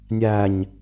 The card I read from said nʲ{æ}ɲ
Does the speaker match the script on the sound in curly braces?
yes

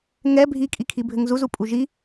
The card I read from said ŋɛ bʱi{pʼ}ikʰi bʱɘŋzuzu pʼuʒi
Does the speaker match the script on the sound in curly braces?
no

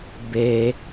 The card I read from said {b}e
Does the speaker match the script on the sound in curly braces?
yes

